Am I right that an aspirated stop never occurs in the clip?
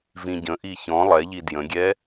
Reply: yes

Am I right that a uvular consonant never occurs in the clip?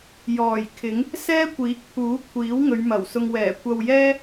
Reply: yes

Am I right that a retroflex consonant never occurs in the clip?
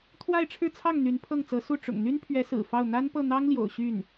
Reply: no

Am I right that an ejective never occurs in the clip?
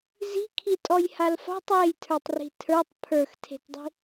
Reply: no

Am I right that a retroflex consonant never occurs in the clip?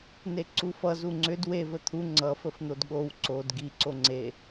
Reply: yes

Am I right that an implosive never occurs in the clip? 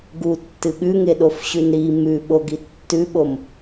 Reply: no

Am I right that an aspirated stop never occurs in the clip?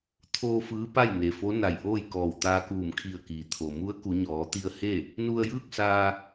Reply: no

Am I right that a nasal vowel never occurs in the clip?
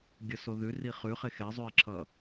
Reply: yes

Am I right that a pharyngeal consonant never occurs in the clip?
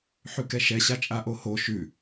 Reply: no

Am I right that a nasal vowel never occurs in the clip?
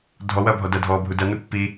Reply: yes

